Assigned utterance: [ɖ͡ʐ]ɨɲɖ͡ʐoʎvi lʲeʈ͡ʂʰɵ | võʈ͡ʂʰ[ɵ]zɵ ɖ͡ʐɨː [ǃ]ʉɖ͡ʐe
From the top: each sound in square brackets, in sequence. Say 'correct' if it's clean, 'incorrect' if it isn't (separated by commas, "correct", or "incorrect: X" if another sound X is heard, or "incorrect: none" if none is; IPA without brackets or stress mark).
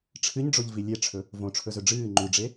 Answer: incorrect: ʈ͡ʂʰ, correct, incorrect: ŋ͡ǃ